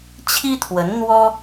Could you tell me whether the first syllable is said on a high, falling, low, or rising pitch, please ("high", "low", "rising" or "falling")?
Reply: high